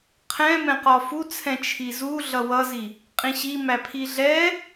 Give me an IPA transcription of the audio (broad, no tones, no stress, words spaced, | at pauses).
qʰɛ̃mɛ̃ qɒfut͡sʰɛ̃ t͡ʃʰizuɮʌ wʌzi | qʼĩɕi mæpʰiɮɛ